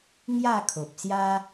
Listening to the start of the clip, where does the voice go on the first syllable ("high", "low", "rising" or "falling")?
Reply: falling